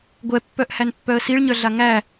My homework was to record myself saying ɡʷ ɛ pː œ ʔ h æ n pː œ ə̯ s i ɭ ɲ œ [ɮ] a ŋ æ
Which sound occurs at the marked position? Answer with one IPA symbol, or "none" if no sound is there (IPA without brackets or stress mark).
ɮ